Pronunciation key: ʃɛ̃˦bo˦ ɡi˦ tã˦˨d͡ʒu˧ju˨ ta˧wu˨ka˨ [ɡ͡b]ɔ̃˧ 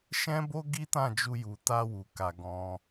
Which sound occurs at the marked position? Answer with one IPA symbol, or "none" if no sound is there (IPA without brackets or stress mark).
ɡ